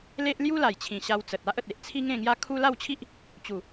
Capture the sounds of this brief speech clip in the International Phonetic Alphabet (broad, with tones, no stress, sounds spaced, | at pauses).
l e˦ ʔ l j u˦ l a˨˩ j t͡ɕʰ ĩ˨˩ ɕ a˧ w t͡s ə˨ t̚ a˦ ʔ ə˨ t̚ e˦ ʔ t͡sʰ i˦ ŋ ẽ˥˧ ŋ j a˦ kʰ u˦ l a˥˧ w t͡ɕʰ i˦ ʔ | t͡ɕ u˨˩